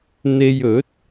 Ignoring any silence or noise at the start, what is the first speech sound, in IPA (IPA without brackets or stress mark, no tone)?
n̪